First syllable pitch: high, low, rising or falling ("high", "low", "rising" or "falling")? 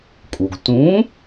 low